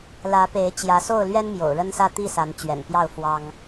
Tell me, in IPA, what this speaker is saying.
l ä˨˦ p e˨˦ ɪ̯ t͡ɕ j ä˨˦ s o˥˨ ʊ̯ l ɥ ɛ˦ n m j o̰˨˩ ʊ̯ ɻ ə˦ n s ä˥˨ t̪ i˥˨ s a˨˦ n t͡ɕ ɥ ɛ̰˨˩ n p j ɑ˥˨ ʊ̯ f w ɑ˦ ŋ

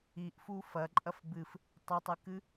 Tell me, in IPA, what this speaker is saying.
i ʔ f u f ɐ ǃʼ ɐ f b ɨ f | tˤ ɐ tˤ ɨ k ɨ

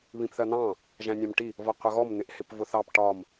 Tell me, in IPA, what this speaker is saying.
β ĩ p θ ɜ n̪ ɑ̃ | ʒ æ̃ nʲ ɑ̃ m ʈ i | v ʌ qʷ ʌ ɣ ɔ m n̪ ɪ ʔ h ɪ p v ʊ θ ɑ p ʈ ɒ m

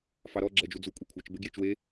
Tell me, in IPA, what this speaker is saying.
f ɑ ɾ ɔ ɡ͡ǁ ɛ d͡ʒ u d͡z u kʷʼ i kʷʰ a t͡ʃ b e ɡ j e t͡ʃ w e

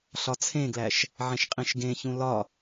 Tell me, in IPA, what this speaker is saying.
ɬ ɒ t͡sʰ ẽ ɡ l æ ʃ | ʕ ẽ ʃ qʼ ĩ ʃ ɡ ẽ ç ũ l ɒ

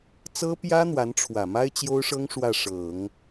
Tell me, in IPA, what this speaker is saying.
t͡s ɤ˥ p j ä˥ n̪ w a˧˥ n ʈ͡ʂʰ w ä˨˩ m a˥ ɪ̯ t͡ɕ j o˥ ʊ̯ ʂ ɤ˥ ŋ ʂ w ä˥˩ ʂ ɤ˨˩˦ ŋ

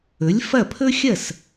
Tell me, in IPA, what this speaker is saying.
ɵ˩˥ lʲ f ɐ˥˩ pʰ ɵ˥ xʲ ɐ˥˩ s

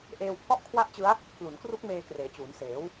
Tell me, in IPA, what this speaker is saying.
ʔ eː˧ w pʰ ɔ˥˩ ʔ kʰ w a˥˩ ʔ t͡ɕ ɯ˦˥ a̯ | pʰ l u˩˦ n k r u˦˥ k̚ m eː˧ k r eː˩˦ t͡ɕ uː˩˦ n s eː˩˦ w

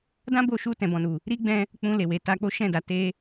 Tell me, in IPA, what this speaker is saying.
d ã˦ b o˧ ʃ u˧ t ɛ̃˨ b ɔ̃˨ n u˨ | ɾ i˦ ɡ͡b ɛ̃˧ | k͡p ũ˧ l e˨ w e˨˦ t a˧ k͡p o˦ ʃ ɛ̃˦˨ d a˨ t e˧

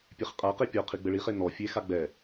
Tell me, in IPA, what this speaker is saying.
pʲ e χ qʼ a q e pʲ ɔ qʰ i ɡ͡b ɘ ɭ i χ e n ɔ fʲ e x a ɡ͡b ɛ

